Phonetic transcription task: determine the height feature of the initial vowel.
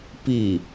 high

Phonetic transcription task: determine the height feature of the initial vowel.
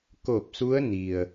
mid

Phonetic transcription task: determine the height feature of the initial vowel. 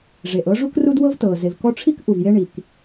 mid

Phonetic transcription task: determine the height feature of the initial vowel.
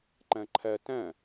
low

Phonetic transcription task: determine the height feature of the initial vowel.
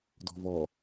mid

